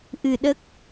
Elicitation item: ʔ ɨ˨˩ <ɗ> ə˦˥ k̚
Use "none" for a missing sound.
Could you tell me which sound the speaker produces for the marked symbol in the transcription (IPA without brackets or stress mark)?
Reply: ɗ